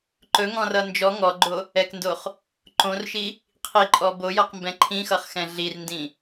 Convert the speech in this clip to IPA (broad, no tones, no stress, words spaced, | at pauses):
ǃɵŋɔ̃rʌ nd͡ʒɔ ŋɔɡ͡ǃo | ɛkndoχ | ǃõrʃi | qʰiǃʼɔ bojʌqmbɛ̃ ǃʰĩxʌχxɛ̃ ɮirndĩ